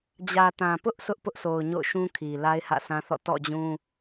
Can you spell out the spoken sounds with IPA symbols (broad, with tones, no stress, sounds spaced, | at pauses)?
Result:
d͡ʑ ä˨ t ã˨ p ʊ˦ ʔ s ʊ˦ ʔ p ʊ˦ ʔ s o˨ ʊ̯ ɲ o̰˦˨ ʊ̯ ʃ ũ˦ kʰ i˨ l a˦ ɪ̯ h ä̰˦˨ s ã˦ θ ɔ̰˦˨ t ɔ̰˦˨ d͡ʑ ũ˦